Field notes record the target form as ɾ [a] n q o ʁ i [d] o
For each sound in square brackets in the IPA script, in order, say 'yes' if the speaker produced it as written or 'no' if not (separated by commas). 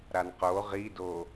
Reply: yes, yes